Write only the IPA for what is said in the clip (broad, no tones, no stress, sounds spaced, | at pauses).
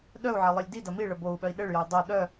ɗ œ u̯ ʕ ʌ lˠ i lʲ d i d ɐ m i ɭ ə b o u̯ ɓ œ i̯ ɗ ɘ ɭ j œ u̯ dˤ o ɗ œ